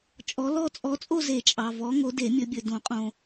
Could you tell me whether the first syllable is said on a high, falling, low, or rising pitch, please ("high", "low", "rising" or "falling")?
rising